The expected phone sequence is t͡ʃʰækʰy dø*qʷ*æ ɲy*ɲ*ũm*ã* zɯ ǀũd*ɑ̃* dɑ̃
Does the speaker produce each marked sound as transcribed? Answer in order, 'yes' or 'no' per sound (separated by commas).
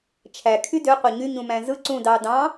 yes, yes, no, no